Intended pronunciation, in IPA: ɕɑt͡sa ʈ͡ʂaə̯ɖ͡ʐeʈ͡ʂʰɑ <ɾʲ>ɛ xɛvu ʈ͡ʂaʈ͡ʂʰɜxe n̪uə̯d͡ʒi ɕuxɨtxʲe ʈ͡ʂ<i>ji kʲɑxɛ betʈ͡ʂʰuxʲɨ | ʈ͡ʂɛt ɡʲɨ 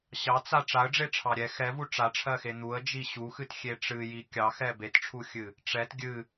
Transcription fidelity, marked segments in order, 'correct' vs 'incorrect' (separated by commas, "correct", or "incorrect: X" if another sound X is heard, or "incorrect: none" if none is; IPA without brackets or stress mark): correct, incorrect: ɨ